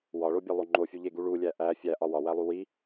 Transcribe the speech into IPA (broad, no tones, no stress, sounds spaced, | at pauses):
w ɒ ɭ o bʲ e lˠ o ŋ͡ǃ o fʲ u ʎ e ɡ u ɭ u lʲ æ ʔ æ fʲ æ ʔ ɒ w ɒ w æ lˠ u w i